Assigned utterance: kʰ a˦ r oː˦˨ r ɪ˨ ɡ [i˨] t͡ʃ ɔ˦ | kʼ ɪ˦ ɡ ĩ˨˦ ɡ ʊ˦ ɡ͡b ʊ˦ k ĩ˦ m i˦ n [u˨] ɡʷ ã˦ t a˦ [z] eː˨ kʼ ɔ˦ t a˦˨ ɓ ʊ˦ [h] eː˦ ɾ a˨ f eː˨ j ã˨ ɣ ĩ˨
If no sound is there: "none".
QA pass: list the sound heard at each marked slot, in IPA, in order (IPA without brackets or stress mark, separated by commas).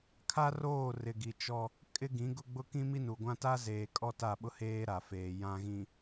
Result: i˨, u˨, z, h